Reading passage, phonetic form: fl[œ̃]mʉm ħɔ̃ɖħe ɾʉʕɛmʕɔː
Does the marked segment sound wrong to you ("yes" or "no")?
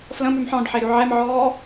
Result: yes